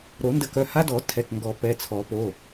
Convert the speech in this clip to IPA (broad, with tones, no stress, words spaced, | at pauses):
ɾo˨˩˦ndə˨˩˦kœ˩˧˩ ha˦dɔ˨˩˦ tʰɛ˩˧˩kŋɡɔ˨˩˦ pɛ˩˧˩t͡sʰɔ˨˩˦po˩˧˩